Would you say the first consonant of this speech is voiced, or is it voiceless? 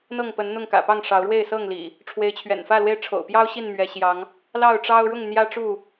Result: voiced